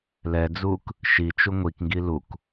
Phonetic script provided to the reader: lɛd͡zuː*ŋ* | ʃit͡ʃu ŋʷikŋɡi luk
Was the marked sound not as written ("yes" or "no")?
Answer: yes